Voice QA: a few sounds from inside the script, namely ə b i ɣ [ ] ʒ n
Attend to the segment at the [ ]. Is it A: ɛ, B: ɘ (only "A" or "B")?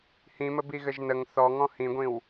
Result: B